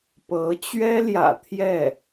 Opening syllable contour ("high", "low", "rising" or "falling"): rising